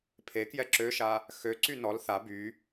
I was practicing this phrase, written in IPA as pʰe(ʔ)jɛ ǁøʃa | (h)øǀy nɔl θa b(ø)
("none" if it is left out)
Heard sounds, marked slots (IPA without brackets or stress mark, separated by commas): k, x, y